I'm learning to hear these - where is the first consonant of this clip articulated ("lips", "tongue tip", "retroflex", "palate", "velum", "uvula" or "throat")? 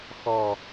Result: velum